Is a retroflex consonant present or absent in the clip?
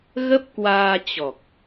absent